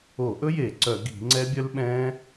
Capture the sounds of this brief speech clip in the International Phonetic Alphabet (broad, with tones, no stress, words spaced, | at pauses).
o˧˩˧ʔɵ˦˥je˧˩˧ ǀœ˧˩˧ɡi̤˧˩˧ŋ͡ǀɛ˦˥ bʲœ˦˥lɓɛ̃ː˦˥